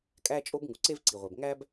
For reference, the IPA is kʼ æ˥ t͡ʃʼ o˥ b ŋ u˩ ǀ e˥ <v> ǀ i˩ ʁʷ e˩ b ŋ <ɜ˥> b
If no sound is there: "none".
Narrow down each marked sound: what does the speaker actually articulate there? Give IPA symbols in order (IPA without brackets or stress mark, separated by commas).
v, æ˥